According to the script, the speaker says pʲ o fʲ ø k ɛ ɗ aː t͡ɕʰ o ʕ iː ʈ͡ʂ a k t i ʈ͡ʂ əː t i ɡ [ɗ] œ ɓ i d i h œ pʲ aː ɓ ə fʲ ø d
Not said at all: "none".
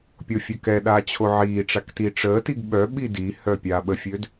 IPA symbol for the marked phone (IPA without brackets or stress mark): ɓ